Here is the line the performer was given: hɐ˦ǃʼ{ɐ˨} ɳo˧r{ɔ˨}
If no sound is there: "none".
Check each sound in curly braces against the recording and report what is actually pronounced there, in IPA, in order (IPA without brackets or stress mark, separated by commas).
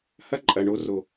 ɐ˨, o˨